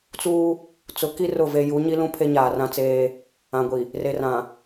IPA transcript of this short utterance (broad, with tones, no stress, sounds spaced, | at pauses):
t͡s uː˦ | t͡s ʊ˨˦ k i˦ r ʊ˦˨ v e˦ j u˨˦ ɲ i˦ l ũ˦ pʰ e˦ ɲ aː˨ r ã˦ t͡s eː˦ | ã˨ ɡʷ i˨ | r e˨ r ã˨